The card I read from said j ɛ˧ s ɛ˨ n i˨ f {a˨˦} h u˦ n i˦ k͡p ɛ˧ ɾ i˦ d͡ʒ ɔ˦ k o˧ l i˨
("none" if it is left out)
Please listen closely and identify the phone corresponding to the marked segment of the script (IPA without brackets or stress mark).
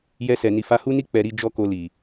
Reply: a˨˦